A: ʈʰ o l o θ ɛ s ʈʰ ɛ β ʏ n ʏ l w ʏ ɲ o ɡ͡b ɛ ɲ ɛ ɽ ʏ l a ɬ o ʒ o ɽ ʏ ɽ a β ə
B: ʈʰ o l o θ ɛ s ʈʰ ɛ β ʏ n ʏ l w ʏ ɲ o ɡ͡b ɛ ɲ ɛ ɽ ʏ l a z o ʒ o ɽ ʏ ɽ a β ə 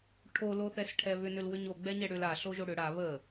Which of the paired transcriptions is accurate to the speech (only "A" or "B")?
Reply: A